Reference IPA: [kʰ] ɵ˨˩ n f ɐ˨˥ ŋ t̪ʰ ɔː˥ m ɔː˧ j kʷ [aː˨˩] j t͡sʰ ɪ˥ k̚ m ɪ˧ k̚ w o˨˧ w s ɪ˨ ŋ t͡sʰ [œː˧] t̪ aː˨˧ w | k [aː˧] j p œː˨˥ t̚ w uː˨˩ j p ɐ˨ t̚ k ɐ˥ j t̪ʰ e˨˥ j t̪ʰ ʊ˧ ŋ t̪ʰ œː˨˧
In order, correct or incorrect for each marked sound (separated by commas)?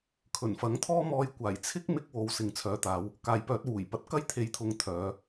correct, correct, incorrect, incorrect